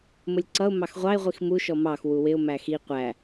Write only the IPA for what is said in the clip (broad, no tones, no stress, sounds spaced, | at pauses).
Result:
m ʊ lʲ ǀ ʌ ʊ̯ m ɑ x ʁʷ ɑ ɪ̯ ʁʷ i x m u ʃ ɔ m ɑ x w u w ɪ ʊ̯ m æ x i qʷ æ